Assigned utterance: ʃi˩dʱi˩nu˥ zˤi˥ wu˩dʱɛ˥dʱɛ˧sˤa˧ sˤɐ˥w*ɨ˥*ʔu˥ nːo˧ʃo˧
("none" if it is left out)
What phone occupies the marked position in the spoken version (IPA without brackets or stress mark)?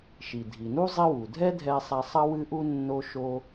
ɨ˥